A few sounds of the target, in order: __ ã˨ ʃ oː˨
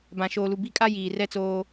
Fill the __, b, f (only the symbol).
b